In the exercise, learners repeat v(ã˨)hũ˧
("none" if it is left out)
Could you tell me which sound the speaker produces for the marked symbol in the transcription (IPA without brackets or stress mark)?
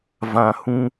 ã˨